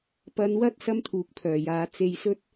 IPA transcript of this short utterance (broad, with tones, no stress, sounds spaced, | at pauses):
p ɐ˨ n w ɐ˧ t̚ s ɐ˥ m t̪ʰ uː˨ k̚ pʰ œː˨˩ j aː˨˧ t͡s e˧ j s ɵ˥ t̚